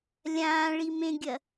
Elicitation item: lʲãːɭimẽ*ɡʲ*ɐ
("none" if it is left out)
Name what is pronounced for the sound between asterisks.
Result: ɡʲ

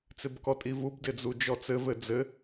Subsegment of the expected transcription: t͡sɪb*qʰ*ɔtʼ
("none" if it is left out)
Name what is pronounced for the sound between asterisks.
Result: k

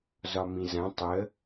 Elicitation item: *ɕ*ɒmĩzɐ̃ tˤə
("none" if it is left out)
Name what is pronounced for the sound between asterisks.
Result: z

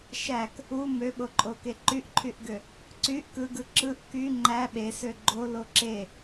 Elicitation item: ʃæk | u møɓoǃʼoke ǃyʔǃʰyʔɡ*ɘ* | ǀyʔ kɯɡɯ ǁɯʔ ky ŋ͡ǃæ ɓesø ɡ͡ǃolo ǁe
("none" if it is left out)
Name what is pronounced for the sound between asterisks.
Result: ø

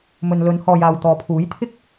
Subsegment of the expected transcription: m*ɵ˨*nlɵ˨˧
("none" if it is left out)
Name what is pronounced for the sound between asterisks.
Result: ɵ˨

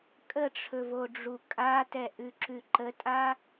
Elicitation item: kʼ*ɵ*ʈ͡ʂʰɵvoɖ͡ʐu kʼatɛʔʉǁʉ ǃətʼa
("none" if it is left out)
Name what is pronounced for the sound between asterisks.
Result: ə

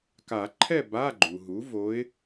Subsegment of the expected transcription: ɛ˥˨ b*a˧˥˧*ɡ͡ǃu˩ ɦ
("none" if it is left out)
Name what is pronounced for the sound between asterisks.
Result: a˧˥˧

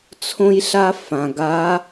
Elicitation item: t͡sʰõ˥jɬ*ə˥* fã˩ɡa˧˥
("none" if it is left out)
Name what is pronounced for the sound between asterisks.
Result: a˥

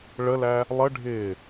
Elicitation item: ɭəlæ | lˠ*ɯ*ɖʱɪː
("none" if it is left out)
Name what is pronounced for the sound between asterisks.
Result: ə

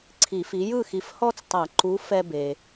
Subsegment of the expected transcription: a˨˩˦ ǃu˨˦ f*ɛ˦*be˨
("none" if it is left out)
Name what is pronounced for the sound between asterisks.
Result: ɛ˦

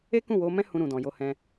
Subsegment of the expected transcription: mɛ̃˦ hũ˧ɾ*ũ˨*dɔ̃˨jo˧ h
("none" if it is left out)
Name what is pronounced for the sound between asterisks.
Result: ũ˨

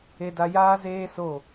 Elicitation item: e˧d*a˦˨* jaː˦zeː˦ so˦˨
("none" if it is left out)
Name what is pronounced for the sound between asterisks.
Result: a˧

